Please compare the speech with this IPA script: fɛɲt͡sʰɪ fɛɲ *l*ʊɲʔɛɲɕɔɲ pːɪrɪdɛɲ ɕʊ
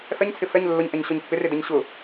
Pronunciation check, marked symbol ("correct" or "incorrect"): incorrect